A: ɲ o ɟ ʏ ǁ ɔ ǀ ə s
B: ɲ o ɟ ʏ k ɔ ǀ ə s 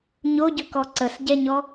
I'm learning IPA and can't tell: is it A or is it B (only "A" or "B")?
B